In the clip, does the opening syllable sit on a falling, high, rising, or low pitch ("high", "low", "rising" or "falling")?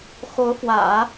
rising